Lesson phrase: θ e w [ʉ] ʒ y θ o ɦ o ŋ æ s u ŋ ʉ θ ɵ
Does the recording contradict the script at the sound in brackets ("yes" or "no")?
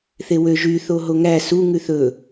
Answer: yes